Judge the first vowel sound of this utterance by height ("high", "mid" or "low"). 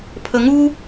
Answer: mid